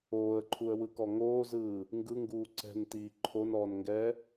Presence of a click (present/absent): present